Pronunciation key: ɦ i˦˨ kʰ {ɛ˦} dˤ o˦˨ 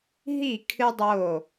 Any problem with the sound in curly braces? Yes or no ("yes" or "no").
yes